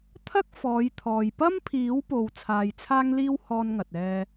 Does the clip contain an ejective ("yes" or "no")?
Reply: no